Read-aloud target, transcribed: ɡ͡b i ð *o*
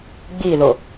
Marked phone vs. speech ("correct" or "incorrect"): correct